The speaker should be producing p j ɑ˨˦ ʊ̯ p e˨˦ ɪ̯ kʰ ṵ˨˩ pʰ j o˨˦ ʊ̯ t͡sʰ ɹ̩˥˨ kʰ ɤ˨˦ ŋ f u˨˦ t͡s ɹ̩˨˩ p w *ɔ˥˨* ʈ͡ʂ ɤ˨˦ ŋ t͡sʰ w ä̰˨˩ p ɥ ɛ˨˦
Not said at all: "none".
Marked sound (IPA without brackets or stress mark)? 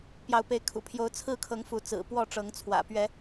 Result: ɔ˥˨